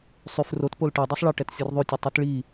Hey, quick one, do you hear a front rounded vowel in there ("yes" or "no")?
yes